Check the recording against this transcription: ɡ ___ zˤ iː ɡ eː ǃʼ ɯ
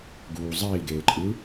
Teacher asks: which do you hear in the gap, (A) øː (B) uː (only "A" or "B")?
B